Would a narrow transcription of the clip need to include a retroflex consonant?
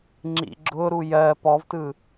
no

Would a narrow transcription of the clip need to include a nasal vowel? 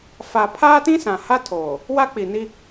yes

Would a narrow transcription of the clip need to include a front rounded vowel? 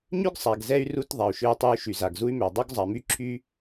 yes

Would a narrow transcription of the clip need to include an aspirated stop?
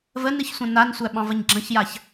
no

